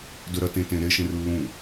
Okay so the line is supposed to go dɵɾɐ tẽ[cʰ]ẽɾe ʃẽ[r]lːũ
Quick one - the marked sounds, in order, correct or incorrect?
incorrect, correct

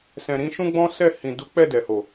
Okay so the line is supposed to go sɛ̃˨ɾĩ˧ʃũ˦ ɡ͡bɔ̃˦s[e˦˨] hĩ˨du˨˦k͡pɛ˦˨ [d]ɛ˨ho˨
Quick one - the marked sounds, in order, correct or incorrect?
incorrect, correct

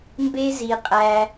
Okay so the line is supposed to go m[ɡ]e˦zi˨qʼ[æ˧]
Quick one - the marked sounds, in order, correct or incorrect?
incorrect, correct

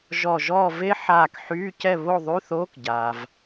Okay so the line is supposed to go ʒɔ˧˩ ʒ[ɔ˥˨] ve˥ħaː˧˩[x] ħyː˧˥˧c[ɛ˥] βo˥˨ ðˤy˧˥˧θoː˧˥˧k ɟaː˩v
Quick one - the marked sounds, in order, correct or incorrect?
incorrect, incorrect, incorrect

